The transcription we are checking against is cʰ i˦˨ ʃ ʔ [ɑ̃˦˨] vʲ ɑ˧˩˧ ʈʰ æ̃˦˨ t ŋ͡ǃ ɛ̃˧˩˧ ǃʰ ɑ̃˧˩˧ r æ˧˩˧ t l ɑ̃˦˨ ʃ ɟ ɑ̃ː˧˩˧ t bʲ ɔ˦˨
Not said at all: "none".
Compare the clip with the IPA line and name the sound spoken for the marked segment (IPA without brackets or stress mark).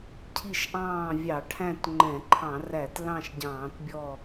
ɑ̃ː˦˨